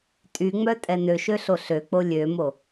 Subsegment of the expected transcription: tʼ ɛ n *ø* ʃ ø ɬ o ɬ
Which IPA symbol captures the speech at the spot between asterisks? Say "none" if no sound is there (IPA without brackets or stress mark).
ø